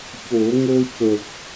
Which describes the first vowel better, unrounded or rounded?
rounded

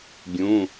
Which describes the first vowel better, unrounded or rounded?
rounded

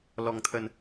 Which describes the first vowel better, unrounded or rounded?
rounded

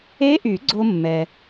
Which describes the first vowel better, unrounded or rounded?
unrounded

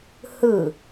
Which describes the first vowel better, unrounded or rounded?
unrounded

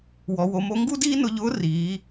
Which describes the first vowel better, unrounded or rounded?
rounded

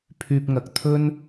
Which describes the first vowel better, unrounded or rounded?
rounded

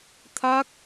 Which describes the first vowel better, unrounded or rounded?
unrounded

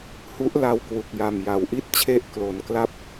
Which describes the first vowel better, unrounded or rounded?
rounded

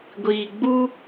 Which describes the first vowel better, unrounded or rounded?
unrounded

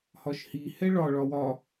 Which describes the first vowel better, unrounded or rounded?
rounded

